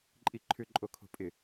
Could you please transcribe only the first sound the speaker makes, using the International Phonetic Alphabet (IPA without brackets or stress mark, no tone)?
ǃʼ